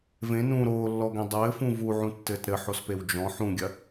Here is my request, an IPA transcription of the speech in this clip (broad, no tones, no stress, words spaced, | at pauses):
vẽ nũ ɾoːlːɔɡẽ dˤɘːfũ vuʕũtːɘːt ɾɘħospew d͡ʒɔ̃ ħũɡʲɐ